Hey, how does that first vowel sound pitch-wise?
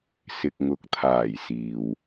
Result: low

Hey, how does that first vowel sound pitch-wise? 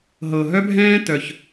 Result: low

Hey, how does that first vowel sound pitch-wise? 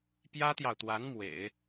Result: high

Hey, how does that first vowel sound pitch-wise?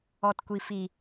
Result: low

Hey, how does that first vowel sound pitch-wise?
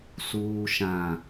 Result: low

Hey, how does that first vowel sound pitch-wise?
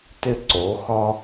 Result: high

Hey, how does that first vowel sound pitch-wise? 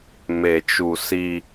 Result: low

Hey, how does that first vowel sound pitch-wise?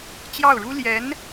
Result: falling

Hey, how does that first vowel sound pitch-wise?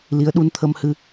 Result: rising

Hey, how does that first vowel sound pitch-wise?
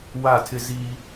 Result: falling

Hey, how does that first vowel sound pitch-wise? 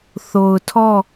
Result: low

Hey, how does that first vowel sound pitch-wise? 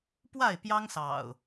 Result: falling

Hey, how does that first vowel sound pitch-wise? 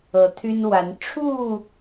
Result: rising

